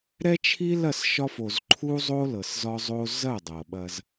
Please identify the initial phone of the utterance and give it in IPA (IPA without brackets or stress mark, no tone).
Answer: ɾ